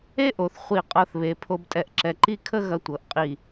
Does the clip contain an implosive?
no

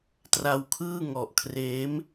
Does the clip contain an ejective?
no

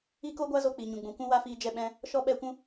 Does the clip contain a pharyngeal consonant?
no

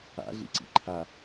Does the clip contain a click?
yes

